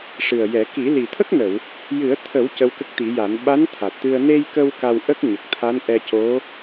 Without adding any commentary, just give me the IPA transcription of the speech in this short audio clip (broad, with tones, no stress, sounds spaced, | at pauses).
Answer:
ʂ ɨ˨˩ ə̯ j ɛ˨˩˦ k i˨˩˦ l i˨˩ t̪ʰ ə˦˥ k̚ n ə˨˩˨ w | j ɨ˨˩˦ ə̯ t̪ʰ ə˨˩˦ w c ə˧˥ w k ə˦˥ k̚ t̪ i˨˩˦ j a˨˩˦ n ɓ a˧˥ n t̪ʰ a˨˩ t̚ t̪ ɨ˧ ə̯ n e˧ j k ə˧ w k a˧ w ʔ ə˦˥ k̚ ɲ ə˨˩ k̚ t̪ʰ a˧˥ n ʔ ɛ˧ c o˧˥